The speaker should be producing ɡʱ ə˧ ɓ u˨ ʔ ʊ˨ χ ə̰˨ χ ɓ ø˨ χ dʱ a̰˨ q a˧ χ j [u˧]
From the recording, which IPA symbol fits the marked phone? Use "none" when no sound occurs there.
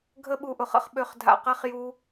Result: u˦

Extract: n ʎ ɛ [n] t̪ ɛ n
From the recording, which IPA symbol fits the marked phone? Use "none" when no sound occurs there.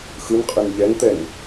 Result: n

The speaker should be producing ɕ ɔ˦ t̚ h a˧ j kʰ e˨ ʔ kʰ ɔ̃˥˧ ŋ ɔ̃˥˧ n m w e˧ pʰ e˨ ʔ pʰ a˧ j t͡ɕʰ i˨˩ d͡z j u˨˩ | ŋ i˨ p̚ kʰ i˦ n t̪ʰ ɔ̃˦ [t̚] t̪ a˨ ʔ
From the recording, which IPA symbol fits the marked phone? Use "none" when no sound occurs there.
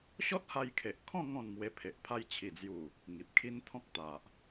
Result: k̚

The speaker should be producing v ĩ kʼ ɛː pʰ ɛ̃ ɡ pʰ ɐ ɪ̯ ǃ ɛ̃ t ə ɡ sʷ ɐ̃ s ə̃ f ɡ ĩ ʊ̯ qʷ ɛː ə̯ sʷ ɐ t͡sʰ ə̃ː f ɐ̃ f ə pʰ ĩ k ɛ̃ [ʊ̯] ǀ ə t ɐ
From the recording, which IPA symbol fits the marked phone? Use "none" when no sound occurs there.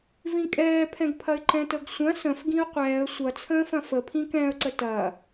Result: ə̯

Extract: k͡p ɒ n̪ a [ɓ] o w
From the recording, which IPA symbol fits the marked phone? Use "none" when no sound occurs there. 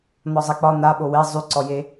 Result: ɓ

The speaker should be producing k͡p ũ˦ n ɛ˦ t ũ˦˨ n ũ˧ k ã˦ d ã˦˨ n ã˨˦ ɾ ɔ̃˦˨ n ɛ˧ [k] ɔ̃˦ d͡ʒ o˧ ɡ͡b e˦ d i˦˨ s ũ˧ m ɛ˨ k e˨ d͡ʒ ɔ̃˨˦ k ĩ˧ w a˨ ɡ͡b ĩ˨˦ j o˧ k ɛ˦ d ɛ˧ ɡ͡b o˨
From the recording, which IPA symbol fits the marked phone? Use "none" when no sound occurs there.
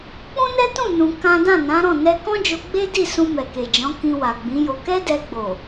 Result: k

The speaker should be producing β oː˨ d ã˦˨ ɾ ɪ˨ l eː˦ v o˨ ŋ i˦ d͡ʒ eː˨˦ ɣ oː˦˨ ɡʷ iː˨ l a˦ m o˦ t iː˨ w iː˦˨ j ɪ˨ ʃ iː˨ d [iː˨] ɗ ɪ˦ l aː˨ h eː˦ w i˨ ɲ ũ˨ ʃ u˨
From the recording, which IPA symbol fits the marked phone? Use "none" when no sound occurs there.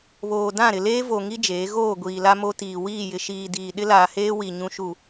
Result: iː˨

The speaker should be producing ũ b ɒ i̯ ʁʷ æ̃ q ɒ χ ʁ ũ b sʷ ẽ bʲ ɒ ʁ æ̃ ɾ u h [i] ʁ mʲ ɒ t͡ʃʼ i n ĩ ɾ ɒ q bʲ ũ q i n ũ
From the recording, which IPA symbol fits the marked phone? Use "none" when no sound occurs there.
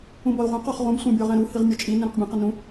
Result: i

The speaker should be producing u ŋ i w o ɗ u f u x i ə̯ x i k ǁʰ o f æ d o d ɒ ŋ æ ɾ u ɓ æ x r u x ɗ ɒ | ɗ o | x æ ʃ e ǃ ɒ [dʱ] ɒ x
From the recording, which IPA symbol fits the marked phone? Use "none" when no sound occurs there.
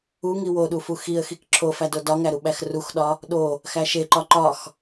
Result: ǃ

